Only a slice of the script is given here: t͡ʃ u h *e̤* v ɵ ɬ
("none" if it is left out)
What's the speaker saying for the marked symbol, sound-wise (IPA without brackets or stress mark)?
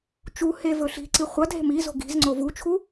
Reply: e